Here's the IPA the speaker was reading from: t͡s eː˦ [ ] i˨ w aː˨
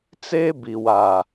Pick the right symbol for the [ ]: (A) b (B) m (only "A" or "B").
A